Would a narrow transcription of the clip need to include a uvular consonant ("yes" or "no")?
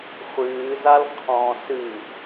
yes